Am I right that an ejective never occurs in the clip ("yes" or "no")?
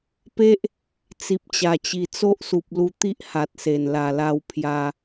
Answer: yes